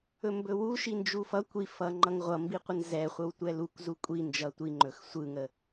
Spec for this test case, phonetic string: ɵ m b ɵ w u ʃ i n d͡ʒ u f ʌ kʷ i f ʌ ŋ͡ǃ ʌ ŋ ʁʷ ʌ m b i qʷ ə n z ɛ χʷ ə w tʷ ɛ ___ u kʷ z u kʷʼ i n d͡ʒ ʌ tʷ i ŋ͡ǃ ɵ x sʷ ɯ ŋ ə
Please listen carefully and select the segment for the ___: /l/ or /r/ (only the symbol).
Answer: l